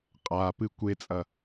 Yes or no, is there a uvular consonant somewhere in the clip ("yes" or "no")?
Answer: yes